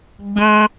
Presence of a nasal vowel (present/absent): present